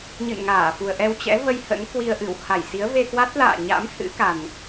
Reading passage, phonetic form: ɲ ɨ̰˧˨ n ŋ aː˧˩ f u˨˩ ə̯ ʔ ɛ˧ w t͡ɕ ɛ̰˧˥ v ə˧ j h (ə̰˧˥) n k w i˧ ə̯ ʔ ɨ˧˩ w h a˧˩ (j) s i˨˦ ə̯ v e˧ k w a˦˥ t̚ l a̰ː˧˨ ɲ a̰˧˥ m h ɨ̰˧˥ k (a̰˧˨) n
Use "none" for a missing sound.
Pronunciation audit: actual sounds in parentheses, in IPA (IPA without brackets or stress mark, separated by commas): ə̰˧˥, j, a˨˩